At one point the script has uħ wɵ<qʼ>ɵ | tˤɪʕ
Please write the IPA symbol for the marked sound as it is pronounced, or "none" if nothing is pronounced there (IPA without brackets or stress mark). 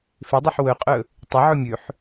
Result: qʼ